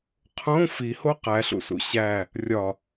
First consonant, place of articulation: uvular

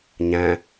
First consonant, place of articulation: palatal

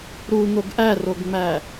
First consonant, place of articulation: alveolar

